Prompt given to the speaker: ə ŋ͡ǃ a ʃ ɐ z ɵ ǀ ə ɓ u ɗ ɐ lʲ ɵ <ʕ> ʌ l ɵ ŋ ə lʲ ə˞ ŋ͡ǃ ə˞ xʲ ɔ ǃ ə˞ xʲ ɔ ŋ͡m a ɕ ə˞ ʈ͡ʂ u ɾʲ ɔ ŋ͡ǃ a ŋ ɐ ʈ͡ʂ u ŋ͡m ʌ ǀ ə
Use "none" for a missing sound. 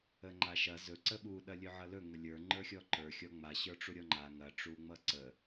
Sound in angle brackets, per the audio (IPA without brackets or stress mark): ʕ